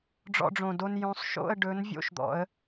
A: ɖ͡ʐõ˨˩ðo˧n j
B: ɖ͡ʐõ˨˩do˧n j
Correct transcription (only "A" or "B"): B